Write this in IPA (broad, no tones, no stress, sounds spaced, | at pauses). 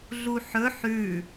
ɮ u ħ ɵ ħ ʉ